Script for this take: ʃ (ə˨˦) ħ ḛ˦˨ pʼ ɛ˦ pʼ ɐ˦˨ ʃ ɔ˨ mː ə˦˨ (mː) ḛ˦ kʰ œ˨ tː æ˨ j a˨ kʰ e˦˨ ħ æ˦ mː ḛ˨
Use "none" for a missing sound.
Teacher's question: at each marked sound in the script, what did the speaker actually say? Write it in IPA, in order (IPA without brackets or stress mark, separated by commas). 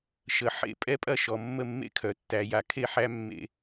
ə˨˦, mː